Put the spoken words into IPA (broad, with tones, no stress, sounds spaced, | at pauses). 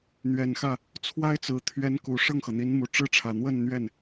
n̪ ɥ ɛ˨˩ n x ä˥˩ | t͡sʰ w a˥ ɪ̯ t͡s ɹ̩˨˩ t̪ʰ ɥ ɛ˧˥ n k u˨˩ ʂ ɤ˥˩ ŋ x ɤ˩ n̪ i˧˥ n m u˨˩ ʈ͡ʂ ɻ̩˥˩ ʈ͡ʂʰ ä˨˩ n̪ w ə˥˧ n n̪ ɥ ɛ˥˩ n